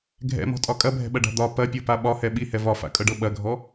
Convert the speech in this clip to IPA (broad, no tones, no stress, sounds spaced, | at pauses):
ɡʱ ɛ̰ m ɔ̤ tʼ ɒ kʼ ɐ bʱ ɛ̤ ɓ ɐ ɖ a̤ d̪ ɒ p ɐ pʲ ɤ p a ɓ ɒ h ɛ ɓ i h ɛ v ɒ f a̰ kʼ ɤ ɖ ɤ ɓ ɐ ɡʱ ɔ